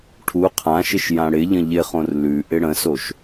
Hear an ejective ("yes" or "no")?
no